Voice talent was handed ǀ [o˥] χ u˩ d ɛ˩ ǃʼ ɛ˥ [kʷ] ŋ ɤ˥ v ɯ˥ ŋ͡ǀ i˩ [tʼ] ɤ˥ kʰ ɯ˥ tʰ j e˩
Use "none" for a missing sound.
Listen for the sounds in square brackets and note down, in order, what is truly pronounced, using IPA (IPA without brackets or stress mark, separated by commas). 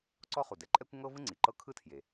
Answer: ɔ˥, kʷ, ǃ